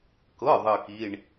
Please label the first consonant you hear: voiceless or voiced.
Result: voiceless